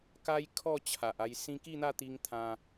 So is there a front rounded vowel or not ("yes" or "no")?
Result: no